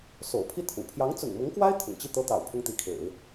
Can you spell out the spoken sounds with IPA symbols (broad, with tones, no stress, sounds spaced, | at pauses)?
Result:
s o̰˨˩ ʊ̯ pʰ i˥˩ t̪ʰ ṵ˨˩ pʰ j ɑ˧˥ ŋ t͡s ʊ̰˨˩ ŋ m ʊ˧˥ ŋ k w a˥ ɪ̯ t̪ʰ ʊ̰˨˩ ŋ t͡ɕ i˥˩ t̪ ɤ˥ t̪ ɑ̰˨˩ ʊ̯ pʰ ʊ˥ ŋ t̪ i˧˥ kʰ ḛ˨˩˦ ɪ̯